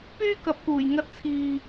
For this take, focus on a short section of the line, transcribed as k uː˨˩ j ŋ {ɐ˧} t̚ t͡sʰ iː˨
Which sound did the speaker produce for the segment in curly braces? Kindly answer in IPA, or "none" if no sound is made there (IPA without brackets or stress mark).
ɐ˧